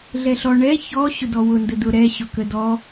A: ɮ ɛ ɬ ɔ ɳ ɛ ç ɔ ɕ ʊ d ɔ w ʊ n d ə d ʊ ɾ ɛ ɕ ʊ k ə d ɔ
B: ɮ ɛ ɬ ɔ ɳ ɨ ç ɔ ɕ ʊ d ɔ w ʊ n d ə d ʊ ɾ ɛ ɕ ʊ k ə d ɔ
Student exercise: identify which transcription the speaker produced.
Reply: A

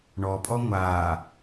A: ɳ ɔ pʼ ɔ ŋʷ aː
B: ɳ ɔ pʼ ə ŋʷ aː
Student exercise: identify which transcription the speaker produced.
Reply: A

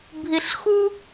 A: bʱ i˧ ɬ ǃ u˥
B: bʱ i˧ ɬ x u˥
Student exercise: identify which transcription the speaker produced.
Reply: B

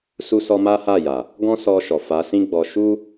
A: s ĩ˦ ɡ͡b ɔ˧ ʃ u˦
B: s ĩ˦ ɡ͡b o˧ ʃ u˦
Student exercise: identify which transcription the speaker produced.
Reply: A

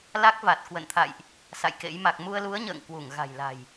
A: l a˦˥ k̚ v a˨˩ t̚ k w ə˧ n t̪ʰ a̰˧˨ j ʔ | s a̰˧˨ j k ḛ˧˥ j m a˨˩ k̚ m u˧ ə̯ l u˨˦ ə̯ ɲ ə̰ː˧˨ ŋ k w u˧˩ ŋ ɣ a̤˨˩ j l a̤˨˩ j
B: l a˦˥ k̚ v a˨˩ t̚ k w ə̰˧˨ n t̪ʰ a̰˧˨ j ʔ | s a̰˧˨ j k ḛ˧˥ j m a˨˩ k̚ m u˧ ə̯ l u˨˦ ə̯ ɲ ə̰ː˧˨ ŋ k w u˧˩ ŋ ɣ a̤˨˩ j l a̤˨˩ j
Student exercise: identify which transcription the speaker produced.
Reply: B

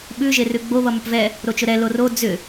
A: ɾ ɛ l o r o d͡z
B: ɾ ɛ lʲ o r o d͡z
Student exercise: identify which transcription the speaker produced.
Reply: A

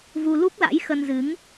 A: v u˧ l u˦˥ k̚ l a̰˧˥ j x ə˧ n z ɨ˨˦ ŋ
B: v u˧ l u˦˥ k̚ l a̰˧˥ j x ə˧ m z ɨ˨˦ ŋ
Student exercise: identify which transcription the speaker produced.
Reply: A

